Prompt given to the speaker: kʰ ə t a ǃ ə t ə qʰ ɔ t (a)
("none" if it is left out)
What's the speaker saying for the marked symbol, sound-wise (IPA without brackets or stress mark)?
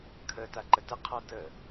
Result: ə